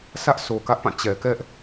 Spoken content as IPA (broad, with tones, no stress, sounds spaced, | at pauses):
sʰ ä˦ ʔ s o˨ k ä˦ ʔ p ã˦˨ t͡ɕ ɛ˨ k ɛ˦ ʔ